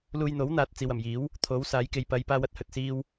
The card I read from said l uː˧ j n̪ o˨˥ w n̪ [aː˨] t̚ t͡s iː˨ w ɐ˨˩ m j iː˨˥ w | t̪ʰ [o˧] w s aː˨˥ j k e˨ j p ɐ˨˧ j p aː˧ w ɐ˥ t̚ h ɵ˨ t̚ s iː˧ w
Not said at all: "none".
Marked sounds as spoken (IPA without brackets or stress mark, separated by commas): aː˨, o˨˥